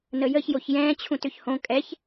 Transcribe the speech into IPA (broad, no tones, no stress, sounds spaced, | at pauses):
n ə j ə ç j o ç j ɛ̃ː t͡ɕʰ ũ t ʏ ç h õ kʼ ɛ ç